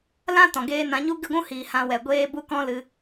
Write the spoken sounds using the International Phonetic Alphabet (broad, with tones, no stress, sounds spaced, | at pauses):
l ã˦ t ɔ̃˨ ɡ eː˦ n ã˨˦ ɲ u˦ ɡ ɨ˦˨ ɡʷ ũ˦ h iː˨ h ã˧ w ɛ˨ ɡʷ eː˦ b u˦ k ɔ̃˦ l ɨ˧